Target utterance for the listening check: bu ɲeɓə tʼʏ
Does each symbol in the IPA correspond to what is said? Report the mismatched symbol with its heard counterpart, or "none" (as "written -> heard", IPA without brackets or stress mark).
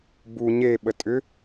none